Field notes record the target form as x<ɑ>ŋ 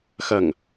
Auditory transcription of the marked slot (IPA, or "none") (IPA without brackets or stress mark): ʌ